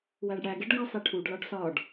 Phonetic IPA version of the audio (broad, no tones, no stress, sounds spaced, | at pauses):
w æ ɖ ɽ æ ɡ e ɖ ɡ ɒ sˤ i ʈʰ u ɖ l ɒ ɖ s ɒ ɖ